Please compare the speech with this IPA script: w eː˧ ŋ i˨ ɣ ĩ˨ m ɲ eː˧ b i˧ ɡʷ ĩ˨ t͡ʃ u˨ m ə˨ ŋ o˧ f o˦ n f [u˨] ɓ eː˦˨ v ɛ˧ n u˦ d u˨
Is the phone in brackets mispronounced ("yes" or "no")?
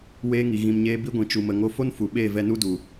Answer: no